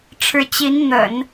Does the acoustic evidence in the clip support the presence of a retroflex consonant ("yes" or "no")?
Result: yes